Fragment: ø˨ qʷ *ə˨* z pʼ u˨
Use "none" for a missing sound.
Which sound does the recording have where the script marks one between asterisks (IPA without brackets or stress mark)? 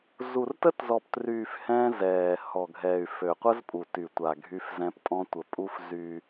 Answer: ə˦